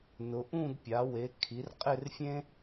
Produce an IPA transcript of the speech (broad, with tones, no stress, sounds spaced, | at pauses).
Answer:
n ʊ˩˧ ʔ ũ˦˨ d pʲ a˩˧ w e˩˧ kʰ i˩˧ r qʼ ɪ˦˨ r fʲ ẽ˦